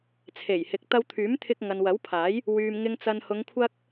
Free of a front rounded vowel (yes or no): no